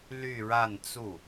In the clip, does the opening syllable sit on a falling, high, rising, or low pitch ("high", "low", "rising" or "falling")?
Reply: falling